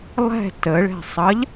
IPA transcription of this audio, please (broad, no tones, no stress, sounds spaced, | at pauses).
lˠ ɛ̤ t ə ɭ ɛ̤ sˤ ʌ ʎ